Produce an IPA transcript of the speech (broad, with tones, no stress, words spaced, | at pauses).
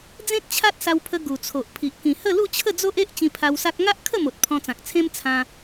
d͡zẽ˦t̚t͡ɕʰa˦t̚ sa˧wpʰə˧ ɡu˨˩t͡sʰo˨ʔpʰi˨ʔ kĩ˨˩hə˥˧lu˥˧ t͡ɕʰə˥˧d͡zo˦ʔe˦ʔ t͡ɕĩ˧pʰa˧wsa˦k̚ ŋa˦ʔkʰə˥˧mo˨t̚ pʰɔ̃˧t͡sã˨k̚t͡sʰẽ˦m t͡sʰã˧